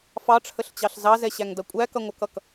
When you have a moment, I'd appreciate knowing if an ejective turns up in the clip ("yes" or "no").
yes